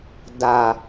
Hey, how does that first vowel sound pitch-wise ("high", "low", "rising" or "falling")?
low